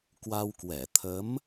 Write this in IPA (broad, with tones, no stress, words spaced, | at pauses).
kwa˧wkwɛ˧˩ t̪ʰə˨˦m